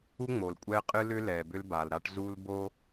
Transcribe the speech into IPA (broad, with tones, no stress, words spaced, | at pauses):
u˦ŋ͡mo˨lkʷʼɛ˦qʼɨ˦ lʏ˦ lɛ˨bʏ˦lba˨lɾa˦ʈ zu˦l bo˦